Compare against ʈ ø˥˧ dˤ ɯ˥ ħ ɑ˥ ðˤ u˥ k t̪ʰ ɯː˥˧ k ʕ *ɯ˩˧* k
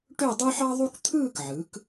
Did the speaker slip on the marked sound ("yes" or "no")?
no